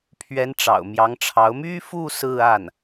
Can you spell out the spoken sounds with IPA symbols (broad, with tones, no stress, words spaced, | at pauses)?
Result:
pʰɥɛ˧˥n ʈ͡ʂɑ̰˨˩ʊ̯mjɑ˧˥ŋʈ͡ʂʰɑ˧˥ʊ̯ my˥fu˥˧ sɹ̩˥˧a˥˩n